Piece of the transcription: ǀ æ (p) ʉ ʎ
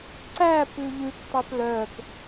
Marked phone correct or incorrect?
correct